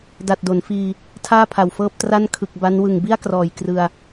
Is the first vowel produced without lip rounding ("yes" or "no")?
yes